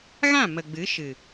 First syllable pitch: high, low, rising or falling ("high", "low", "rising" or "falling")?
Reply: falling